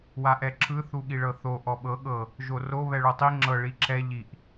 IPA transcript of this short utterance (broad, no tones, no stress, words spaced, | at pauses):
waʔɛǁʰɯ θuɠiɭɤθo ʔɔɓɤ ɠɤ | ʒoro βɛɭotˤi ŋ͡ǁɤ ɭiǁʰɛ ʎiʔ